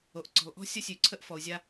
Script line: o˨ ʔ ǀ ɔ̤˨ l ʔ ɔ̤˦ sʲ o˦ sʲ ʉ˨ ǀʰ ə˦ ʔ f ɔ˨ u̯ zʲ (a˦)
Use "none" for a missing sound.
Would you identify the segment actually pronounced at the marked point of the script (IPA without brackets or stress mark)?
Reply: a˦